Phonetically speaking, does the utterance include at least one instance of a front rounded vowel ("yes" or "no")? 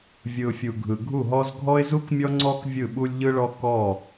no